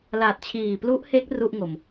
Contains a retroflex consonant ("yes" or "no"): no